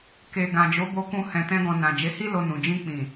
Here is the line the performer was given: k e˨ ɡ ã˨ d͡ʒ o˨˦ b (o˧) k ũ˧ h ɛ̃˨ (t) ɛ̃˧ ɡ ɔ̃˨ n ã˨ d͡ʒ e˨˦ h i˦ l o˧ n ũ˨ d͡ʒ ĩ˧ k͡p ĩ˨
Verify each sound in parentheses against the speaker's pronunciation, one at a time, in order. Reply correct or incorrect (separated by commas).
correct, correct